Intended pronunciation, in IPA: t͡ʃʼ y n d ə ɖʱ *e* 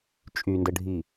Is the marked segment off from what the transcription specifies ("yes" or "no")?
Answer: yes